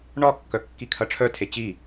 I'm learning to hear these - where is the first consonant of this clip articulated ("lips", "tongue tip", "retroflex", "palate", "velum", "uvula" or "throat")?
retroflex